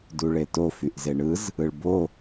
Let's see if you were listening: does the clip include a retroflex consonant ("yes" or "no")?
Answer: yes